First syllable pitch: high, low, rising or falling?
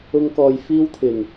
high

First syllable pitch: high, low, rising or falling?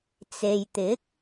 low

